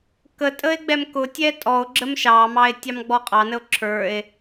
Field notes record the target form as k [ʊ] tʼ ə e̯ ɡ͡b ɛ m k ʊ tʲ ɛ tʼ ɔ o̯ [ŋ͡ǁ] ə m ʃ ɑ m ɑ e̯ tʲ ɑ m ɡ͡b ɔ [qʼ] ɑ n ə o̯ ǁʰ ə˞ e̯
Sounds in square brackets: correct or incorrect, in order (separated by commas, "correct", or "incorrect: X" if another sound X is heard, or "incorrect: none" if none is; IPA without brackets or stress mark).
incorrect: ə, incorrect: ɡ͡ǁ, correct